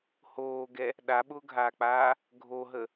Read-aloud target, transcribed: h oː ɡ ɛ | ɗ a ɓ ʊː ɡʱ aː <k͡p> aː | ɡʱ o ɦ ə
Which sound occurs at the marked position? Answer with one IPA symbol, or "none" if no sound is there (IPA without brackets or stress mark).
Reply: k͡p